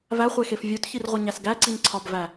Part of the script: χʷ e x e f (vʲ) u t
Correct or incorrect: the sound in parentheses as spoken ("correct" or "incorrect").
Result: correct